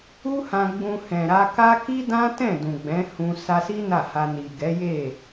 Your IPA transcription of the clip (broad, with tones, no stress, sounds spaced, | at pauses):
u˦ h ã˧ ɡ͡b ũ˧ h ɛ̃˨ ɾ a˧ k a˦ k i˦ d ã˦ t ɛ̃˦˨ d ũ˨ ɡ͡b ɛ̃˨˦ h ũ˧ s a˧ s i˦ n a˦˨ h a˧ n i˨ ɡ ɛ˨˦ j e˦˨